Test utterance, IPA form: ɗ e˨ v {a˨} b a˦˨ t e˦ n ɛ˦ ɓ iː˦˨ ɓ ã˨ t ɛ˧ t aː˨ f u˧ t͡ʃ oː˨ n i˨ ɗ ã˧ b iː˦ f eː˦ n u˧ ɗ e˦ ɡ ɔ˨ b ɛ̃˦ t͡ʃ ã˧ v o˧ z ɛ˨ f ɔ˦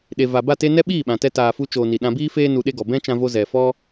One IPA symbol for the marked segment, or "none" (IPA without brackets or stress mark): a˨